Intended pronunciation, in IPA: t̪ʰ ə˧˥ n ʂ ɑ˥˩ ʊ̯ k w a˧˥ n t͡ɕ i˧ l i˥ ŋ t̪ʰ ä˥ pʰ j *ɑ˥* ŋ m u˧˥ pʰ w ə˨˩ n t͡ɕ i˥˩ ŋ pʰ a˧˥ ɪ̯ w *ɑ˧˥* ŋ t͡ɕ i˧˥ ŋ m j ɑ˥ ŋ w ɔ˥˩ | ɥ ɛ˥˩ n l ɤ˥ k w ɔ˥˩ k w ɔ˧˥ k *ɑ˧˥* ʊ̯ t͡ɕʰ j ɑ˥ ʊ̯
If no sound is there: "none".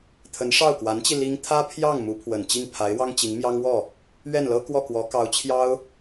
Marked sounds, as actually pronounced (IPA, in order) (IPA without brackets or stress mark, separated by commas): ɑ˥˩, ɑ˥, ɑ˧˥